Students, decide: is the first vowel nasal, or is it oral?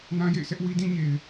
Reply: nasal